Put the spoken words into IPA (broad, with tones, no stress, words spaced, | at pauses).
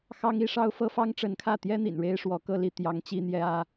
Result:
xɑ˥ŋi˥ʂɑ˥ʊ̯ fɤ˥fɑ˥ŋʈ͡ʂə˧˥nkʰä˥˩ t̪jɛ˥n̪ḭ˨˩n ɻe˥ɪ̯ʂwɔ˧˥kɤ˥˧ li˥˩ t̪jɑ˧˥ŋ t͡ɕi˥ n̪jɛ˥ä˥